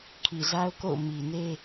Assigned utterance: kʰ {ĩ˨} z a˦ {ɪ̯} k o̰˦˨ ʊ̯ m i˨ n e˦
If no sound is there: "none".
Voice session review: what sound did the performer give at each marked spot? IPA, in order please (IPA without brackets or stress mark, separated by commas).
i˨, ʊ̯